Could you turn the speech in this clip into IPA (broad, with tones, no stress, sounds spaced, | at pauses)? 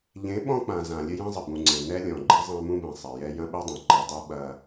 ʎ ẽ˨˦ ɓ ɔ̃˦ k͡p ã˨ z ã˨ lʲ ɘ˦ j ẽ˦ zˤ ɘ˨ b ũ˨ ŋ͡ǀ ẽ˨ n ɛ˦ lʲ ɔ̃˨ ɡ͡ǃ i˦ zˤ ã˦ m ũ˦ b ẽ˨ sˤ e˨ j ɛ˦ j ɐ̃˦ ɓ ɛ˦ dˤ ẽ˨ ǃ i˨ dˤ i˦ ɓ ɐ˦